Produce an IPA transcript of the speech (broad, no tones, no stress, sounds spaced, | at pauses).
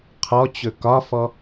qʰ ɔ t͡ɕ ɵ k ɒ f ɔ